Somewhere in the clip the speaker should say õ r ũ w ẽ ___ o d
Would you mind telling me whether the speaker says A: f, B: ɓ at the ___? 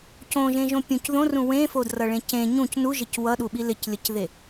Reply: A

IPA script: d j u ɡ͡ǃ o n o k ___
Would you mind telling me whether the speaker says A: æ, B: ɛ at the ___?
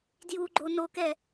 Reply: B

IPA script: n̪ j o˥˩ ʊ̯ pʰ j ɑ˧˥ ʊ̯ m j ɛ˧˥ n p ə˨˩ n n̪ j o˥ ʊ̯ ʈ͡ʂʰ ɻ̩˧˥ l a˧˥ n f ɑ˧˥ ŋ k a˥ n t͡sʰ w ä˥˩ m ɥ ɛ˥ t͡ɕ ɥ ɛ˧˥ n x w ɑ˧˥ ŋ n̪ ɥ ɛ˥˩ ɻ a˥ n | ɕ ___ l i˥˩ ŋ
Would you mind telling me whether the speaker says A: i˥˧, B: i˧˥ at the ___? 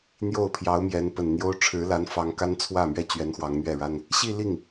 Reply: A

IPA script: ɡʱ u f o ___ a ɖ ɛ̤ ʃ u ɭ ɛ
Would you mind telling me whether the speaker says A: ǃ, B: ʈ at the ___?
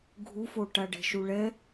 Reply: B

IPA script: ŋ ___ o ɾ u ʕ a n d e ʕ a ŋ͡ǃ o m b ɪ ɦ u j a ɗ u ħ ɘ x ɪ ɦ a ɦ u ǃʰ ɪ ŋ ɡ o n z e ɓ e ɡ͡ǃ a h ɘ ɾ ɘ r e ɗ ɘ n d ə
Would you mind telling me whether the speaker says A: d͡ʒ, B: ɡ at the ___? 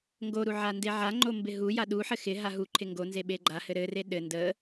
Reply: B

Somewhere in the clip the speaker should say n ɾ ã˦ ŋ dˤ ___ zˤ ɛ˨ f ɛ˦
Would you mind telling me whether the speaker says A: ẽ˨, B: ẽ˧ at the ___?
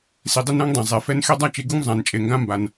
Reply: A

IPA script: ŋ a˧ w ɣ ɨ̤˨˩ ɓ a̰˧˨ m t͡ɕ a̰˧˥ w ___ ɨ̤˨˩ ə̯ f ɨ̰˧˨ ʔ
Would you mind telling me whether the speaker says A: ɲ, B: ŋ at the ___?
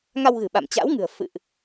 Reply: B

